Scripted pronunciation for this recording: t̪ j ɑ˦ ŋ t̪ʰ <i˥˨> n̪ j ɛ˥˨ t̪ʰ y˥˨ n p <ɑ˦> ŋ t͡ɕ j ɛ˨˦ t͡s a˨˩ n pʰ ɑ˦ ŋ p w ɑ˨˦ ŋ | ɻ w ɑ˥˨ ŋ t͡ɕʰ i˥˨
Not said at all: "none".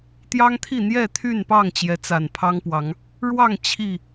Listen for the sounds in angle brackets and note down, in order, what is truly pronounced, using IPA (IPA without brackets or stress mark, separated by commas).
i˥˨, ɑ˥˨